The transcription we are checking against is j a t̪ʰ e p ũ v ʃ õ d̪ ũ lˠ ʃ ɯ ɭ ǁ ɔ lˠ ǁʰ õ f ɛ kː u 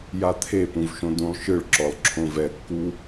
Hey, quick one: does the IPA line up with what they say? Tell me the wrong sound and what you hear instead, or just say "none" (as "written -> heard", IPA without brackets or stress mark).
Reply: f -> v